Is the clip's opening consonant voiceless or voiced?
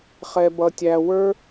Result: voiceless